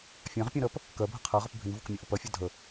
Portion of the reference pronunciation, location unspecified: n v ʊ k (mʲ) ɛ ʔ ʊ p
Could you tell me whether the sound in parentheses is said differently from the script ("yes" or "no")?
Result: no